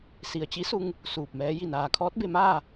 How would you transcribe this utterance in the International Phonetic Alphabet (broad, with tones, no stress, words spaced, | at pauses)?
si˩ə̯t͡ɕi˧˥su˧ŋ | suː˧˩p̚mɛː˧˥ ji˧˩naː˩kʰɔː˧˥t̚ be˧maː˥˨